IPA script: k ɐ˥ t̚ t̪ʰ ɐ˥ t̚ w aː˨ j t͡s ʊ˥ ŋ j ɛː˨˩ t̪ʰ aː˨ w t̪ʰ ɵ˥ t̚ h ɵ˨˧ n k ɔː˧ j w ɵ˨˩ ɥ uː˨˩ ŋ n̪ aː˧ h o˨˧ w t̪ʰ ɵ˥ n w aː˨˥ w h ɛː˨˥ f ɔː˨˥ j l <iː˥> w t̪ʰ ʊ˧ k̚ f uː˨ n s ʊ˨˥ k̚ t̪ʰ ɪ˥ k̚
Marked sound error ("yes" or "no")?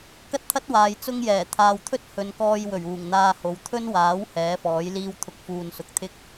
no